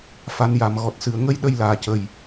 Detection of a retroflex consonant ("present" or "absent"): absent